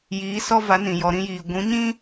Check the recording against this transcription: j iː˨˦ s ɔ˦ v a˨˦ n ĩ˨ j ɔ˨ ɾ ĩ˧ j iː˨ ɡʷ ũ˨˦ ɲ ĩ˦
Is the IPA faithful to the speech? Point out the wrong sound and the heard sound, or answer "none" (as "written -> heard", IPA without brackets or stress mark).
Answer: none